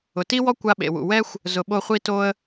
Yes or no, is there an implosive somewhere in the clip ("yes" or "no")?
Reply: yes